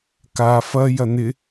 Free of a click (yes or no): yes